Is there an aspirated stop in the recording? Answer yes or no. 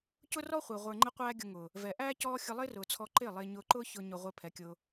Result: yes